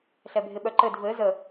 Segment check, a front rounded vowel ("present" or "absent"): present